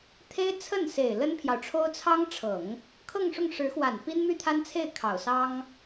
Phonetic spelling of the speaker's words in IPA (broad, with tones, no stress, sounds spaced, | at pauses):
t̪ʰ e˥ ɪ̯ t͡sʰ ə˥˩ n s e˨˩ ɪ̯ l ə˥ n pʰ j ɑ˨ ʊ̯ ʈ͡ʂʰ o˥ ʊ̯ t͡sʰ ɑ˥ ŋ ʈ͡ʂʰ ɤ˨˩˦ ŋ | kʰ ɤ˥˧ ŋ ʂ ʊ˥˩ ŋ ʂ ɻ̩˧˥ x w a˨˩ n p i˥ n m y˥˩ t̪ʰ a˥ n t͡sʰ e˥˩ ɪ̯ kʰ ɑ˨˩ ʊ̯ s ɑ˥ ŋ